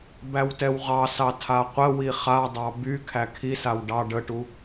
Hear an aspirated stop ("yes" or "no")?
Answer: yes